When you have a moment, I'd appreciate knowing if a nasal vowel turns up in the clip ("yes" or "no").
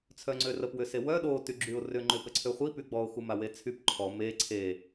no